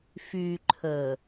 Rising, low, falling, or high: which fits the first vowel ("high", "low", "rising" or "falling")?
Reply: low